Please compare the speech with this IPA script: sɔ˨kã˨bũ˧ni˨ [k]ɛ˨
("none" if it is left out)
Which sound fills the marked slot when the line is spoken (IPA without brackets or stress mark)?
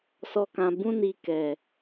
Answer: k